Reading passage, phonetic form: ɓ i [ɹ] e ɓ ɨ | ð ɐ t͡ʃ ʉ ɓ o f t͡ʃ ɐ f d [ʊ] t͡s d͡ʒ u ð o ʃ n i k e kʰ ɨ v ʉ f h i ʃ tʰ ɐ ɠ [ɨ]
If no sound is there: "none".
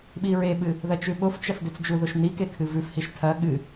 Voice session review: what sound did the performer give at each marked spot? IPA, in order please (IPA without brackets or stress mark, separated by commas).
ɹ, ʉ, ɨ